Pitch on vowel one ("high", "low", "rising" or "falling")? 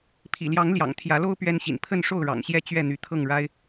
low